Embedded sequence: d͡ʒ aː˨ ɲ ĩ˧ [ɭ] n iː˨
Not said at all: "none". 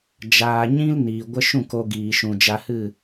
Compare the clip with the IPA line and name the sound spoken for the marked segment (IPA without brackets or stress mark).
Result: l